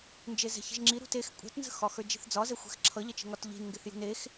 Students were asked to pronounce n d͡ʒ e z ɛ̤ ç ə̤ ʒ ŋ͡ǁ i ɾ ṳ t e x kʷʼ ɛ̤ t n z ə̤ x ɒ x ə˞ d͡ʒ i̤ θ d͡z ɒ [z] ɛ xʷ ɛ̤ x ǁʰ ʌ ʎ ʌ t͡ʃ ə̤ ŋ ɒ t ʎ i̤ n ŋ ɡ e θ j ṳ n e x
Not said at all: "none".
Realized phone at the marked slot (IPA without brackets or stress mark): z